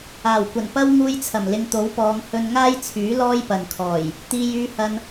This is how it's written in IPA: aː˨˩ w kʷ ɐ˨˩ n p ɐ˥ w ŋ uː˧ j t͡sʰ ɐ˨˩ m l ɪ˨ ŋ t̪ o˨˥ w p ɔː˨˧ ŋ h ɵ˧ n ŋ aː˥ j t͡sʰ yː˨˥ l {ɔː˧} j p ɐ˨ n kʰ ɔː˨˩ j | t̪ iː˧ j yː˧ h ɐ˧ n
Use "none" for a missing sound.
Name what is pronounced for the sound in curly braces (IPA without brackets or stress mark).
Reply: ɔː˥